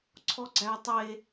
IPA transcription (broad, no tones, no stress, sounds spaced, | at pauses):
ǀʰ ɔ ɡ͡ǀ æ tˤ e